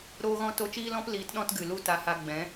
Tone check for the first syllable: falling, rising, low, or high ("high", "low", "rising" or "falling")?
high